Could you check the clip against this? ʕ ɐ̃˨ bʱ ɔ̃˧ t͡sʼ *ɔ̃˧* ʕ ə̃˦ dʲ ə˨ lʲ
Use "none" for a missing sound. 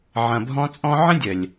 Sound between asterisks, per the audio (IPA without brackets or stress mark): ɔ̃˧